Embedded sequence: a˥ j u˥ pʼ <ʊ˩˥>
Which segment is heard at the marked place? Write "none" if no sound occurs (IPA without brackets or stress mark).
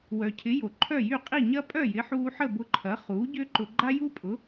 ʊ˩˥